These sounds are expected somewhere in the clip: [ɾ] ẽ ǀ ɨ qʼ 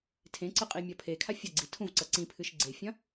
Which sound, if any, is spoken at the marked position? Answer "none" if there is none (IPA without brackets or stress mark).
tʰ